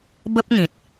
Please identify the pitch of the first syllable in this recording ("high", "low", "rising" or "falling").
high